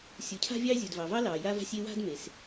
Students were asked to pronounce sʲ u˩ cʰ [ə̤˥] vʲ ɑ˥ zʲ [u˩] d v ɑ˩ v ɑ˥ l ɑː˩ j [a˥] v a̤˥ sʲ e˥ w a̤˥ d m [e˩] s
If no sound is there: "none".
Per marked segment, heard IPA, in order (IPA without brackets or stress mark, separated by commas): a̤˥, u˩, a˥, e˩